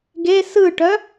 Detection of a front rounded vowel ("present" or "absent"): present